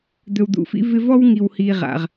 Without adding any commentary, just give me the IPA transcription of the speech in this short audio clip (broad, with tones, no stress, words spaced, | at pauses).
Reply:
d̪ɵ˨wd̪ṵ˨fḭ˥ vɪ˦ vɔ˥wŋi˨whi˨ʁa̰˩ʁ